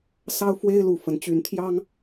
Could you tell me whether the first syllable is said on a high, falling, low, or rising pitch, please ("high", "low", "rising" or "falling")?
high